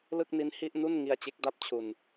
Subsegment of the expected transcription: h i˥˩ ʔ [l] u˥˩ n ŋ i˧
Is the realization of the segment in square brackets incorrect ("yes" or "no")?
yes